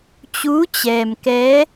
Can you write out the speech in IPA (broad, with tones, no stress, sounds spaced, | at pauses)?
t͡ɕ uː˧˥ t͡ɕ ɛː˩ m k ɛː˧˥